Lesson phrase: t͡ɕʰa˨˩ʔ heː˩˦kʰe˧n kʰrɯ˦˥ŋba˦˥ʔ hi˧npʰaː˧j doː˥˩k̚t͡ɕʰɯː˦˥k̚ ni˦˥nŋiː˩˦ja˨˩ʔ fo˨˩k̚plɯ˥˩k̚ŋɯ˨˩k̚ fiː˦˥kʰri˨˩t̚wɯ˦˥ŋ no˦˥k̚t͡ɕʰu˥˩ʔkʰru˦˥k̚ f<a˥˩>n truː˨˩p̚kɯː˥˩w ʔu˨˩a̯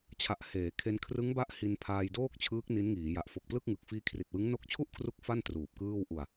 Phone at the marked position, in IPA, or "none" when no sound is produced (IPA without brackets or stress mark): a˥˩